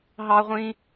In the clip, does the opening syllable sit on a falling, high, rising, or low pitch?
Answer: high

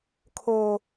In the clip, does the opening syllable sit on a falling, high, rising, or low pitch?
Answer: low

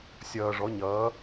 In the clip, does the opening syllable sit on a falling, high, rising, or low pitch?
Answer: low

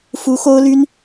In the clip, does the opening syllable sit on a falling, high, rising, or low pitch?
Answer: rising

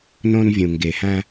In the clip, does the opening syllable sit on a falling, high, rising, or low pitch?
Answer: high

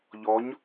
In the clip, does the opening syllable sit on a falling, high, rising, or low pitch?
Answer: rising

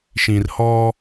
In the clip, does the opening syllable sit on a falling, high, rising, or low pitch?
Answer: low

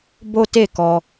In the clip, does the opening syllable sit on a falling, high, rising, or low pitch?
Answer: high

